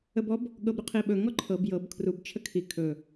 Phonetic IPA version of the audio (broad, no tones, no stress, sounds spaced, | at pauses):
ə b ɔ b | ɠ ɤ b ɾ ʏ qʰ i ɓ ɵ ŋ ɔ ǃʰ ɤ b j ɤ b kʰ r u b t͡ʃʰ ə kʰ i kʰ ɵ